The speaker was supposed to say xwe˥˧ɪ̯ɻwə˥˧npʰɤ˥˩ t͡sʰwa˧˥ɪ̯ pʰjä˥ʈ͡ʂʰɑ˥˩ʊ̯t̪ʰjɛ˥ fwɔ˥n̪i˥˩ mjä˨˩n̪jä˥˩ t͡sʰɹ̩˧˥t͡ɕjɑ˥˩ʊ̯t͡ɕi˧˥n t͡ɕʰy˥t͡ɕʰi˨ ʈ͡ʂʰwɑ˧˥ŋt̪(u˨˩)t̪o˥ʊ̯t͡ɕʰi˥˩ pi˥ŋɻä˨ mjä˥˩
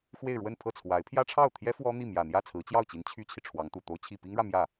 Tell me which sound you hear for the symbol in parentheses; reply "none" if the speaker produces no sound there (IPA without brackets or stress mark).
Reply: u˨˩